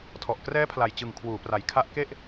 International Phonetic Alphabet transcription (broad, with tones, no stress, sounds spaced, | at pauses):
tʰ ɔ˨˩ ʔ k r ɛː˦˥ pʰ l a˨˩ j t͡ɕ ɯ˨˩ ŋ kʰ w uː˩˦ p r a˨˩ j kʰ a˦˥ ʔ k e˥˩ ʔ